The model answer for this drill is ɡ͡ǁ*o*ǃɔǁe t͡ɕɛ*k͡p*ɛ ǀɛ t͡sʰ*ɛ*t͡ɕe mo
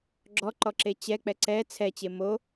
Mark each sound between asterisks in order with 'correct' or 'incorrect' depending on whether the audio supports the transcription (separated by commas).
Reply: incorrect, correct, correct